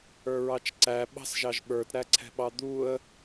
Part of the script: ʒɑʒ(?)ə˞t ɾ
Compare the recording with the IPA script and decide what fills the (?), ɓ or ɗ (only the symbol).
ɓ